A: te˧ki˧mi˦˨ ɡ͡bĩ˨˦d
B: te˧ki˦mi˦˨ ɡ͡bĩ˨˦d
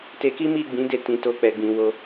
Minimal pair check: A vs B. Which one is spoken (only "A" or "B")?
B